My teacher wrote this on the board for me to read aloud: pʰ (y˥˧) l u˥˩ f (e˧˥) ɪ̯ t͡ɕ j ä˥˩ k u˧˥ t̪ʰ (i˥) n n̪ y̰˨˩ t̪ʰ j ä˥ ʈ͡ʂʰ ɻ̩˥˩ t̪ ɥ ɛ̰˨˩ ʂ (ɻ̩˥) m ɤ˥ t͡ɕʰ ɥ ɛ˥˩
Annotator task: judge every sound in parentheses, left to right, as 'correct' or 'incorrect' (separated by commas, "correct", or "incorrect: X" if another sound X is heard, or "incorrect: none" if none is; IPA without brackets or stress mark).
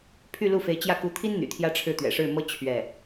correct, correct, correct, incorrect: ɻ̩˥˩